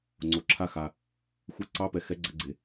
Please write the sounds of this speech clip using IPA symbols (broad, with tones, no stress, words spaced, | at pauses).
ŋ͡ǀo˩ ǁʰa˧xa˩ | xʷe˧˥˧ǀɑ˧˥˧ pɛ˩xɛ˧˥˧ɡ͡ǀɐ˧ ɡ͡ǀe˩